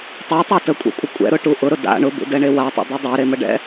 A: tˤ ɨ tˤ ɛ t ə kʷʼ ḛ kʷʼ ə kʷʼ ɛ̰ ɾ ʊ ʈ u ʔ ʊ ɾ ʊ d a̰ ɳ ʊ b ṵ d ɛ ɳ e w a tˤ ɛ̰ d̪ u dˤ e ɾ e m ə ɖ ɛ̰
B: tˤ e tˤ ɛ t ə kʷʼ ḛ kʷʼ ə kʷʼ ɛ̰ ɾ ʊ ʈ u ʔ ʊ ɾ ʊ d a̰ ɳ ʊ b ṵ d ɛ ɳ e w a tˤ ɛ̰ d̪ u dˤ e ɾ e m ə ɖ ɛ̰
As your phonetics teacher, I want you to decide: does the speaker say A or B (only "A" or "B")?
B